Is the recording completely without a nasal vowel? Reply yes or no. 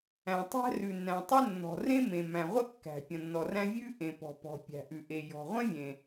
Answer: no